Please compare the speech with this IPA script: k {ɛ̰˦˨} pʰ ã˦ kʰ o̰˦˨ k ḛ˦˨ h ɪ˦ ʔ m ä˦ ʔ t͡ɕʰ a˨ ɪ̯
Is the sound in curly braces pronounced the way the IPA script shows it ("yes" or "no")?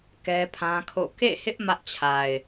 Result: no